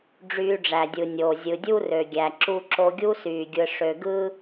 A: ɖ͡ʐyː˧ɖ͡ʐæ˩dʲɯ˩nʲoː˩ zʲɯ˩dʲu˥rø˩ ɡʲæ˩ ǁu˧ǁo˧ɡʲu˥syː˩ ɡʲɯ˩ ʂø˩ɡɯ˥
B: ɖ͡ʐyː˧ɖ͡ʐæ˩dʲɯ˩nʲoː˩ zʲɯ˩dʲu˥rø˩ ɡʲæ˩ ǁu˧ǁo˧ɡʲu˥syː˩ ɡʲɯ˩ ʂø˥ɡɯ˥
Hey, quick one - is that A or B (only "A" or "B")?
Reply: A